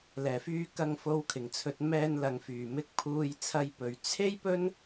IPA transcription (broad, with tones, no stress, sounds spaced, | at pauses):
l ɛː˨˩ f yː˧ k ɐ˧ ŋ f o˧ w kʰ ɪ˨˩ ŋ t͡sʰ ɵ˨˥ t̚ m ɛː˧ n l ɐ˨ ŋ f yː˨˩ m ɪ˧ k̚ pʰ uː˧ j t͡sʰ ɐ˧ j p ɵ˨ ɥ t͡sʰ e˥ j p ɵ˥ n